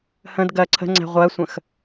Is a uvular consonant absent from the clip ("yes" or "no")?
no